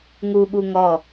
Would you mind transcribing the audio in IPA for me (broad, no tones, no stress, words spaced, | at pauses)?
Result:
ŋuɠu ŋɔ